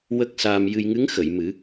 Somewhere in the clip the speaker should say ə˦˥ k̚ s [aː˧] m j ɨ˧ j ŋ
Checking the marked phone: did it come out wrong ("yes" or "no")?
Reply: no